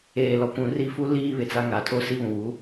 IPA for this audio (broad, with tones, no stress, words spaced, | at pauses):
eː˨lɔ˨kʷũ˨ri˦˨ fu˦ liː˦βɪ˨t͡sa˦ ŋa˨tʰo˦ si˦βũ˨wu˨˦